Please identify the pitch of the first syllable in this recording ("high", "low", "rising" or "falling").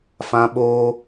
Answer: high